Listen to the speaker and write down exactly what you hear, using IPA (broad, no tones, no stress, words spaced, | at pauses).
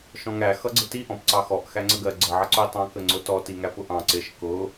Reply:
ʃɔ̃ŋæ xʌɡ͡ǀɪti ʔɔ̃pǀɑxɔʔ xæŋ͡ǀəɡɜ ɡ͡ǀə ʕʌǀʊi̯tˤɑ̃ kəŋ͡ǀʊtɔ tiŋæpʊʔɑ̃ ǀɪʃ kʊ